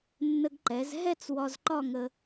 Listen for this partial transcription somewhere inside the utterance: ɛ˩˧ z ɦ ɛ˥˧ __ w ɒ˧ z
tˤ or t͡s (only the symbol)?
t͡s